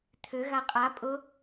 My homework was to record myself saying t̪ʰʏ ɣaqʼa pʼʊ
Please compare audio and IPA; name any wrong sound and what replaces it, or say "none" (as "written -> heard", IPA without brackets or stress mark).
none